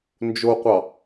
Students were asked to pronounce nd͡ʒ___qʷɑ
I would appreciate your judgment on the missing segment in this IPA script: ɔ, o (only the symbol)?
o